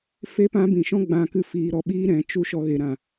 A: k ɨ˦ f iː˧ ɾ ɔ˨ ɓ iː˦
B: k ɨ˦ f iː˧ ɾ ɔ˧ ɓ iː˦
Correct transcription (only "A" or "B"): B